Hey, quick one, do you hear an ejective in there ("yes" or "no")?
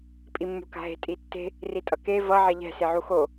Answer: yes